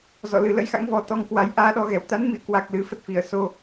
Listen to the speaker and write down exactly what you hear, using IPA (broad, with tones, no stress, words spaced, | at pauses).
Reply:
zɔ̰˧˨lɨ˨˩ lə̰˧˥jxa̰˧˥ŋvɔ˨˩ t̪ɔ˧ŋkwa˨˦j ʔaː˧ɗɔ˧ɣɛ˨˩w t̪a˨˦nmḭ˧˨ə̯kwa˨˩k̚ lɨ˨˦ fə˦˥t̚fi˧˩ə̯so˧